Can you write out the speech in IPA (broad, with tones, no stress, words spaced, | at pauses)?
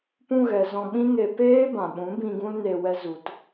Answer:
pũ˧ɣɛ˨ zɔ̃˧ɓĩ˦ŋe˧ peː˦bã˨ ɓũ˨˦bĩ˧ ɡũ˦lne˧ wɛ˧zu˨t